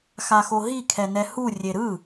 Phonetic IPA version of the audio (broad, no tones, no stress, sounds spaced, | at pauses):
x a x o ɦ i kʰ ɛ n ɛ h u rʲ e ɾ ɯ